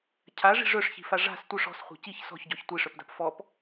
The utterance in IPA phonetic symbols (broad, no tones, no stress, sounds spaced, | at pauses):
cʰ a ʐ i̤ ʐ œ ʂ ç i̤ f a ʐ a̤ s tʷ œ ʂ ɔ̤ s χʷ a̤ c i ç s ɔ̤ ç ɟ ɔ ç tʷ i ʂ œ p d a̤ p f ɔ p